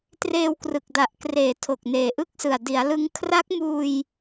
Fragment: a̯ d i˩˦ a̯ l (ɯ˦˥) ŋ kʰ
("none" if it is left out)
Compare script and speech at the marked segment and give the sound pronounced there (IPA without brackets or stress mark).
ɯ˦˥